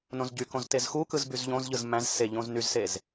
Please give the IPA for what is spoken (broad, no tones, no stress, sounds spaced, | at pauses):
n õ z ɟ y k õ z t e z x u k ɯ z b y z ʎ õ z ʎ ɯ z m æ̃ z s e ʎ õ z n y z s e z